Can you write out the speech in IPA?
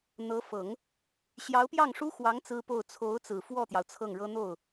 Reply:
n̪ɤ˧˥fɤ˨˩˦ŋ | ɕjɑ˧˥ʊ̯pjɑ˥˩ŋʂu˥xwɑ˧˥ŋ t͡sɹ̩˥po˥˩ʊ̯ t͡sʰo˧˥ʊ̯t͡sɹ̩˨˩ fwɔ˥˩t̪jɑ˩ʊ̯ t͡sʰɤ˥˩ŋɻɤ˥ n̪o˥˩ʊ̯

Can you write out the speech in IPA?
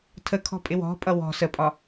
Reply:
tʰəkʰɔ̤pʼɪ wɔ̤pʼʌ wɔ̤ səpʼɒ

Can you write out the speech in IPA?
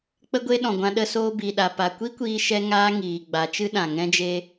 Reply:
k͡pə˦ɡʷe˦ɗɔ̃˨ ɡʷã˧ɗə˧soː˧ bi˨ɗa˨ pa˨kʷi˦kʷiː˧ ʃɛ˦ŋaː˦ ŋiː˨ɡ͡ba˨˦t͡ʃɨ˦ɗã˨ ŋɛ̃˦d͡ʒe˦

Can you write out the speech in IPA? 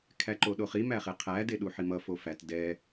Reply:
kʰæǃoɗoχi mæχeqʰæ deɗuħimʌ fofæt dɛ

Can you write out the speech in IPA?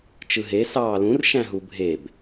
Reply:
t͡ʃɯɦe sɑːlũr ʃæ̃ɦubʱeb

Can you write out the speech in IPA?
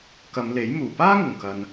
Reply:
kɐ˨˧mle˨˥j muː˨˩paː˥ŋʊ˨˩ŋkɐ˨n

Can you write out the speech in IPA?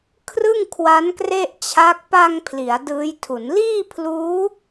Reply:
kʰrɯ˥˩ŋkʰwa˦˥nkre˥˩ʔt͡ɕʰa˦˥k̚ pa˧ŋ pʰli˩˦a̯dɯː˦˥jtʰu˩˦n liː˥˩pʰluː˦˥

